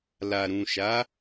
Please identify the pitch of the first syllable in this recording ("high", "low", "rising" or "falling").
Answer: low